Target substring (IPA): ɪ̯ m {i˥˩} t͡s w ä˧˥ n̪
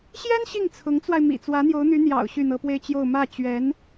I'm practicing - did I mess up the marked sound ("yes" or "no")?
yes